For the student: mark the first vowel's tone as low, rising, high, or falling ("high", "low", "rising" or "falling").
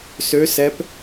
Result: rising